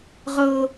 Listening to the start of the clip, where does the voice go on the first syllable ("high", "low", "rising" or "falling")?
high